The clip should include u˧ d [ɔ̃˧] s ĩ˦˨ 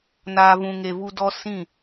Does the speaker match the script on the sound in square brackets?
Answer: no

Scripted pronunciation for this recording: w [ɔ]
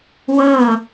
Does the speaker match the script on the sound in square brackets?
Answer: no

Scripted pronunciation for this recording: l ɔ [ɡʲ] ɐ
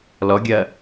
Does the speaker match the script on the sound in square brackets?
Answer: yes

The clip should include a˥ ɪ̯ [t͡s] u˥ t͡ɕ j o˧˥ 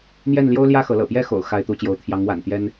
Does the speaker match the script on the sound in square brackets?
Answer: no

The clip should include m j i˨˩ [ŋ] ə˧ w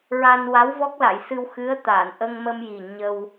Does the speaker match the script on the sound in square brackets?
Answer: no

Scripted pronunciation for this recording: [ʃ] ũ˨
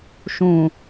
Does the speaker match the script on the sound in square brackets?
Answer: yes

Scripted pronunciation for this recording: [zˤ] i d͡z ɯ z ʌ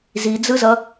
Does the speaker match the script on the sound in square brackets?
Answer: no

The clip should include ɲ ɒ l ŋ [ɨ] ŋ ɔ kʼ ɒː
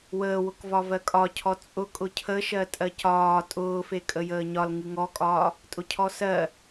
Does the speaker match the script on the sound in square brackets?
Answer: yes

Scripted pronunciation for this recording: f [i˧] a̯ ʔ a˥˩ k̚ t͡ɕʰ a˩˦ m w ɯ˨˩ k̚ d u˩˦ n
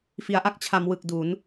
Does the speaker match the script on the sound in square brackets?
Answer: no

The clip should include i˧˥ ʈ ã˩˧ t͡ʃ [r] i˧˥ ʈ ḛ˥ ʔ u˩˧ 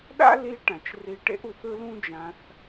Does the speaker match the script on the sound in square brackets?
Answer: yes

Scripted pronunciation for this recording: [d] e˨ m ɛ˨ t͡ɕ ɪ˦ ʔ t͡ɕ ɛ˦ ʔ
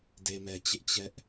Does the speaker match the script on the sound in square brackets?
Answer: yes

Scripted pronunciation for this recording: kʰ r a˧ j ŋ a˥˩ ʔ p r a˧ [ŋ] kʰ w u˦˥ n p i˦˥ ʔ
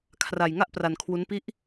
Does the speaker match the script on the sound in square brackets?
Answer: no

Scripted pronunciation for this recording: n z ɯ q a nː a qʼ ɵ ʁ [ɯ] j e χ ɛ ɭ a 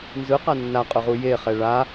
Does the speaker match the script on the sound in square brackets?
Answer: no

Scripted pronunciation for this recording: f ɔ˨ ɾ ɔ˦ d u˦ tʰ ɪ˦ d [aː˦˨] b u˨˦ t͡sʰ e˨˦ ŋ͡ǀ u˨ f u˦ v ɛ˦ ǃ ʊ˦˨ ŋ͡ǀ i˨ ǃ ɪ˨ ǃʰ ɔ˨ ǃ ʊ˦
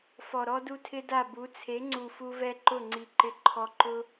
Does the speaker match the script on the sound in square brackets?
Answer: no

